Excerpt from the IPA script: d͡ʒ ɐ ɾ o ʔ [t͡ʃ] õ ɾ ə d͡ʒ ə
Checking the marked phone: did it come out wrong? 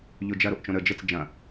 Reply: no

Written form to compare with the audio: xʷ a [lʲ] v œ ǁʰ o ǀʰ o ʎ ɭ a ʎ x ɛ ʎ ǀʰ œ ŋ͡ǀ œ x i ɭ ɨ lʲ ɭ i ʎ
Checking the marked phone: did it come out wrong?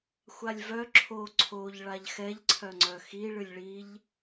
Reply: no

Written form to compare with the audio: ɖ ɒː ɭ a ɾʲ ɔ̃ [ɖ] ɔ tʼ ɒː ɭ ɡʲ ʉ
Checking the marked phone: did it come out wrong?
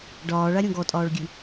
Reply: yes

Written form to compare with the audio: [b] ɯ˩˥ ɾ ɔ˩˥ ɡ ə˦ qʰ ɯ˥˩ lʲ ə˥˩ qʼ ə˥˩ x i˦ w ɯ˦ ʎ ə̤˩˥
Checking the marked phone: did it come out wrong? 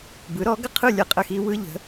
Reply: no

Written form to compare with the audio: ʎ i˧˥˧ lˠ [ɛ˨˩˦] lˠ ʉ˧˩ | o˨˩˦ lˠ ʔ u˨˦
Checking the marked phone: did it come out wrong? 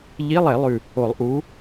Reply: no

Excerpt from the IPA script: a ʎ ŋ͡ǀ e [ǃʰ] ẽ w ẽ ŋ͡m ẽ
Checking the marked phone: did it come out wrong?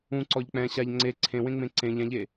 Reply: yes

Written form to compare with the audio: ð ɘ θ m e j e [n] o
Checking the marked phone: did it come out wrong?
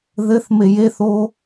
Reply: yes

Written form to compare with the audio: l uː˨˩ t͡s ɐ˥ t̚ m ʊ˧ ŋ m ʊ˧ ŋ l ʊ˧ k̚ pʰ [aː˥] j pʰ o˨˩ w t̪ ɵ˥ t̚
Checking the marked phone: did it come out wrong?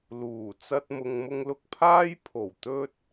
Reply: no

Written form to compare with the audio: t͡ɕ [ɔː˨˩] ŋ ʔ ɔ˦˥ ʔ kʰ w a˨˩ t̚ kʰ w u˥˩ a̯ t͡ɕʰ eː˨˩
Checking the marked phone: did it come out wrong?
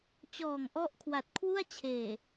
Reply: no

